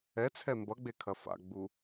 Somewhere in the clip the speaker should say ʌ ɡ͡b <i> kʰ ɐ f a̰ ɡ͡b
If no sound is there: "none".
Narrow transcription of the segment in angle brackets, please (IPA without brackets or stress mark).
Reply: e